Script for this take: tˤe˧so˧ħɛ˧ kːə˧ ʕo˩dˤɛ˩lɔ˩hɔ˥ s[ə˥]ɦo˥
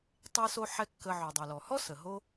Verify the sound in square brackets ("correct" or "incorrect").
incorrect